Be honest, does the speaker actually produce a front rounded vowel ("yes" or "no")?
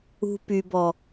yes